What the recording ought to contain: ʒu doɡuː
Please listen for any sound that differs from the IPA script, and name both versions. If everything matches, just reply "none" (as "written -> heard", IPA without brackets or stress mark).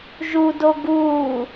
none